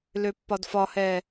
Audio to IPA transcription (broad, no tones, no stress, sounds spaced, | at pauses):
l ø pː ɒ d f ɒ h ɛː